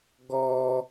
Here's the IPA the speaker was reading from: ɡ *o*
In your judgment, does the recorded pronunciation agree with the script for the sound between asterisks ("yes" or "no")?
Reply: no